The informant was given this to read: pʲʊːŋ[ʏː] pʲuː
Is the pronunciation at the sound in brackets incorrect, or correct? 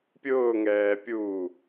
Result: incorrect